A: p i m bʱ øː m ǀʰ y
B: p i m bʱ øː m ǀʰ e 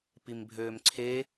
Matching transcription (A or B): B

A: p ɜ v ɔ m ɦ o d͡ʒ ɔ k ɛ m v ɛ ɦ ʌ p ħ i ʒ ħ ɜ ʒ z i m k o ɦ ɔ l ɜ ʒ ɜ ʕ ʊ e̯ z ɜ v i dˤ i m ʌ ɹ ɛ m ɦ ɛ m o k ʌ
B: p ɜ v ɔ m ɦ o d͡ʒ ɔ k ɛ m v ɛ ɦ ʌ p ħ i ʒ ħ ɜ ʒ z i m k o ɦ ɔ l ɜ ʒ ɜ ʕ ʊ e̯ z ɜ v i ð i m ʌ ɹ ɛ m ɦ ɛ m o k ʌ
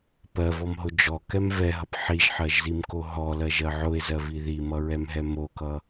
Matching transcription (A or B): B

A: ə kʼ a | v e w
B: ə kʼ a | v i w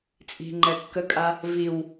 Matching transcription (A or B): B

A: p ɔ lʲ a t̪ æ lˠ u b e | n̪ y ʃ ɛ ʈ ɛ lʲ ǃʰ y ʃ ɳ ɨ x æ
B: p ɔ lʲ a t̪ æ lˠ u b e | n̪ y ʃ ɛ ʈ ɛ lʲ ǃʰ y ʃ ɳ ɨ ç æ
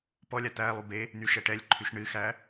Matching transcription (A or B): A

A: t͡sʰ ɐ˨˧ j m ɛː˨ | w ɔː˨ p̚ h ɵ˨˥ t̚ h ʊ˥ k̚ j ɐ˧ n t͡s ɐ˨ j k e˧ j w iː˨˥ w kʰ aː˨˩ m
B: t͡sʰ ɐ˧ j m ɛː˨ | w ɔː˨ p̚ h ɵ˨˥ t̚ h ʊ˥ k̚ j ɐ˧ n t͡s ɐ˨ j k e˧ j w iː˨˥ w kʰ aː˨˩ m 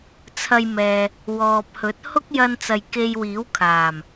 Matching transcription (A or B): B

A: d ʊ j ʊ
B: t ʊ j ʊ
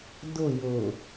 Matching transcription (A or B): A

